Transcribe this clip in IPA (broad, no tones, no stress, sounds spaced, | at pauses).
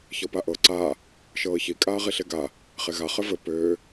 ç ɤ p a ʔ ɤ ǀ a | ʃ ɤː ç i kʼ aː ʁ i ɬ e ɡ a | χ e ɣ a χ ɘ v ɘ p ø